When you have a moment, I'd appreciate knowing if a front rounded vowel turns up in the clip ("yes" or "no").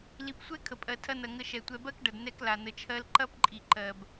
no